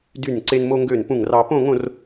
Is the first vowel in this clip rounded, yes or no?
yes